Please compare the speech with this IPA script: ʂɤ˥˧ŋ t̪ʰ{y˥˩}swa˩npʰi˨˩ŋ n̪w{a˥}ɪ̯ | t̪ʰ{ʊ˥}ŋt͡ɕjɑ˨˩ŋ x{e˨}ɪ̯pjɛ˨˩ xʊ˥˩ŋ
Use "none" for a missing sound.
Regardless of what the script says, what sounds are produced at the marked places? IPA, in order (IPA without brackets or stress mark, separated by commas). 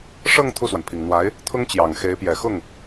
u˥˩, a˧˥, ʊ˥, e˧˥